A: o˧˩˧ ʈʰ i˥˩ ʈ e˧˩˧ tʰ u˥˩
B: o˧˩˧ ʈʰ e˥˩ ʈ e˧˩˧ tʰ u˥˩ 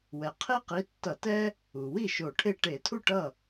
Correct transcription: B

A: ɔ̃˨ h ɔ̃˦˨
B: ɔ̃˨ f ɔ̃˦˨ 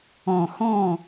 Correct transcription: A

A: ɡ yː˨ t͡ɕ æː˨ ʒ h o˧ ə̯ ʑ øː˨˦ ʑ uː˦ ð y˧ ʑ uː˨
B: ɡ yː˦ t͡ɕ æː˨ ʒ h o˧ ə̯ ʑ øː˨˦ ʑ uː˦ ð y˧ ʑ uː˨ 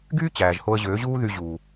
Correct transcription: B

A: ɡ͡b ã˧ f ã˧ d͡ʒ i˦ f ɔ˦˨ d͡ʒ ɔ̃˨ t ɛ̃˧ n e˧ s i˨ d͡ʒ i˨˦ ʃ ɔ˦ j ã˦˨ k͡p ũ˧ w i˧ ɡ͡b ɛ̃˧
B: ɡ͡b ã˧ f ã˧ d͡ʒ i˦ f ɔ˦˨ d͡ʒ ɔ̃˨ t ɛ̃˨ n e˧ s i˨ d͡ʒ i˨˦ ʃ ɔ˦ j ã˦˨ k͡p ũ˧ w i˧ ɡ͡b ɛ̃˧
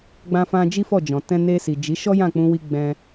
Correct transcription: A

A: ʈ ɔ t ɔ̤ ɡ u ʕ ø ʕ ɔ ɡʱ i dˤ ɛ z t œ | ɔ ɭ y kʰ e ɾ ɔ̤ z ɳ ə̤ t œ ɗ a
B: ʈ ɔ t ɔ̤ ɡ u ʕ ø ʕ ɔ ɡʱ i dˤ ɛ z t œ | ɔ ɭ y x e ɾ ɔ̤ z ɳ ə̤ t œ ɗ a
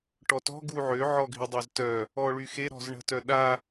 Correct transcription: B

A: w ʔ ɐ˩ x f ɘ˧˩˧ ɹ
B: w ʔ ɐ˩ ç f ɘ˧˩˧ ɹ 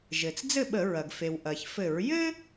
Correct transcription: B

